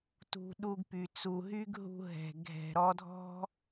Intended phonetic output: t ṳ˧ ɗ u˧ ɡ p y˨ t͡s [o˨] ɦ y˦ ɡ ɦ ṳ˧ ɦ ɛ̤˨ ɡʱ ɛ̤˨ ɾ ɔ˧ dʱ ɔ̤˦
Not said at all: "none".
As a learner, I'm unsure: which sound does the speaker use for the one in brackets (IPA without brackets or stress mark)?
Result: u˨